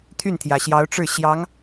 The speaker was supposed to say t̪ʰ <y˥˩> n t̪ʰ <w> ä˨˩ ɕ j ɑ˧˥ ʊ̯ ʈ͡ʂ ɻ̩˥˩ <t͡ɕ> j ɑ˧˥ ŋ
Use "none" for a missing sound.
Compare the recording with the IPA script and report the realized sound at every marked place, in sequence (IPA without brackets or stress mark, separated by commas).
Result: y˥˩, j, ɕ